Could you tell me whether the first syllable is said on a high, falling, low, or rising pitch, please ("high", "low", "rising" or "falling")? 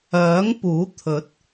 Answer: rising